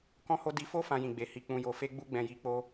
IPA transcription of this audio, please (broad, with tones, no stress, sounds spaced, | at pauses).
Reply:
k ɔ̃˦ h o˦ d i˧ f o˦ f ã˦ j ĩ˧ ɡ͡b e˧ h i˦ k͡p ũ˦ j o˧ f e˦ ɡ͡b u˦ ɡ͡b ɛ̃˧ j i˧ k͡p o˦